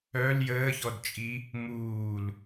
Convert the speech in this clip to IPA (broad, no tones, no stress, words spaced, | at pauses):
œl jəːçɔdt͡ʃʼi | muːl